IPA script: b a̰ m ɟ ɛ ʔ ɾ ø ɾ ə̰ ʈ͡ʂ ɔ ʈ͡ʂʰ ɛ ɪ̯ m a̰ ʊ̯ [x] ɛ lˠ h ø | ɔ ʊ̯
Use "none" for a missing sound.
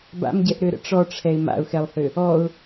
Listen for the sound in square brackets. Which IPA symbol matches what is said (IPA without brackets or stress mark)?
x